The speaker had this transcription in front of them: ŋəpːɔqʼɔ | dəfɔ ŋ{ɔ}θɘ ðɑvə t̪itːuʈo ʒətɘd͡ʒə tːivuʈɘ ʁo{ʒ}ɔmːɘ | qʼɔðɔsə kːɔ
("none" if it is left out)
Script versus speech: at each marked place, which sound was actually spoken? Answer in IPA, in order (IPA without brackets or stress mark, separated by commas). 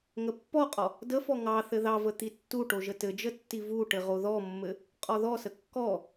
ɑ, ð